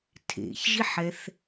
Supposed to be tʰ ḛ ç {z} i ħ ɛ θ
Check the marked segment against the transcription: incorrect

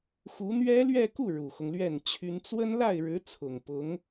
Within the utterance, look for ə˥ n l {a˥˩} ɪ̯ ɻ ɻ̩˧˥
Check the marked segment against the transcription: correct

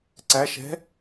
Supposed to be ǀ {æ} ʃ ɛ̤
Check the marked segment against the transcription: correct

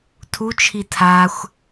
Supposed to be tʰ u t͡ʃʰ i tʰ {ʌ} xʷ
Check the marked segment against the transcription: incorrect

